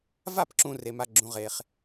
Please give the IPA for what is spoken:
v a˦˨ p ǁ ũ˨ r e˨ m a˦ ɡ͡ǁ ũ˦ ʁ e˦ χ

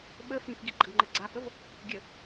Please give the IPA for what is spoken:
ɓ ə f ĩ f ɡ i ɡ͡ǃ ə ɡ ŋ͡ǃ ɘ ɡ͡ǀ a f ə v | ɡʲ ə

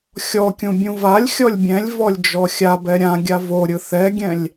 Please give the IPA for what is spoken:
xʲ ɔ kʲ ũ bʲ ũ v a lʲ xʲ ɔ lʲ bʲ ɛ̃ lʲ v ɔ lʲ d͡ʒ ɔ xʲ a b ɛ ɾʲ ã ɡʲ a v o ɾʲ ɯ θ ɛ ɡʲ ɛ̃ lʲ

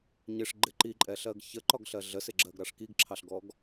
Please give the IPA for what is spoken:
ɲ ɪ ʂ ɡ͡ǃ ɪ ǃ i ǃʼ ɛ ɬ ɜ ɡ ç ə ǃ ɒ ɡ ɬ ɜ ɮ ə s ɪ ɡ͡ǁ ɜ ɡ ɾ ɑ ʂ k i ɡ ǁʰ ɑ ɬ ɡ ɔ ɡ

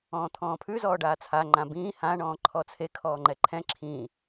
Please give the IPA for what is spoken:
ɔ̃ː t̪ʰ ɔ̃ː pʰ ʉ z ɔː ɖ aː t͡sʰ a ŋ͡ǃ ã b ĩː h ã ɳ ɔ̃ː ǃʰ ɔ t͡sʰ e kʰ ɔː ŋ͡ǃ ɛ ǃʰ ɛ̃ ǁʰ ĩ

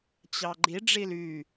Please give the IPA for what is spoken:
t͡ɕ ɑ ɡ͡ǃ i ɖ͡ʐ i l y

